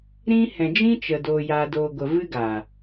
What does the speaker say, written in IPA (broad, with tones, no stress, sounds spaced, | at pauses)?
ɾ ĩ˧ h ɛ̃˨ d͡ʒ ĩ˦ t͡ʃ ə˨ d o˨ j a˨ d o˨ ɡʷ ə˨ v ɨ˦ ɡ a˨